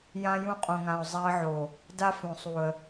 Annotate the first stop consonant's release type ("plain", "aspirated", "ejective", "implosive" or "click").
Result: ejective